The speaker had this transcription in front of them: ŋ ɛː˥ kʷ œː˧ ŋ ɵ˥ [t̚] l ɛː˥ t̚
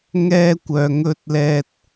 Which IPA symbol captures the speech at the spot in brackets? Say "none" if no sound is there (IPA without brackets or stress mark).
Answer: t̚